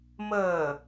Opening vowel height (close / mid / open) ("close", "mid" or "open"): mid